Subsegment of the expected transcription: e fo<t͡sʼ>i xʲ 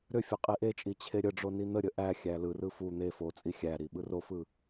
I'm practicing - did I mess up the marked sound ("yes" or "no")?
no